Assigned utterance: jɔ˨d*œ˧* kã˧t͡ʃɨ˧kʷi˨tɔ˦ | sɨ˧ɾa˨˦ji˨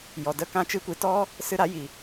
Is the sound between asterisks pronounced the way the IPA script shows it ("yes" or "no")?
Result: no